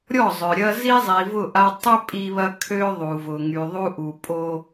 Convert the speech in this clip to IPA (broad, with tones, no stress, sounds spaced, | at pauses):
ɾʲ ɔ˦˨ zˤ œ˨ ɾʲ ɐ˦ z i˦ zˤ i˨ v ʊ˦˨ ʔ a˦ tˤ ʏ˦ pʼ i˦ β ɐ˦ kʰ ø˦ ðˤ u˨ v ʊ˨ ŋ y˨ ðˤ u˦ ʔ u˨ pʼ o˦